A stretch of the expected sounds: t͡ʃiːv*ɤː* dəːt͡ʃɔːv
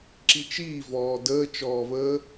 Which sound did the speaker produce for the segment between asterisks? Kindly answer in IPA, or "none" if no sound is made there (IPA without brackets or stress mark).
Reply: ɔː